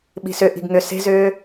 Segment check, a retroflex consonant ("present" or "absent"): absent